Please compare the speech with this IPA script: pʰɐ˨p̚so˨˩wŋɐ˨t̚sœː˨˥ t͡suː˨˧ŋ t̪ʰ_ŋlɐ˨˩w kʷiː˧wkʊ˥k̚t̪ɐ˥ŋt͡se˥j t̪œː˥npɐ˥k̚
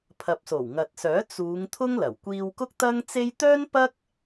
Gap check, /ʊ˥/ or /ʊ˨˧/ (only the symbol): ʊ˥